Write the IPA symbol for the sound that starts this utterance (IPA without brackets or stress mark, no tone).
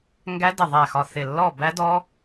ŋ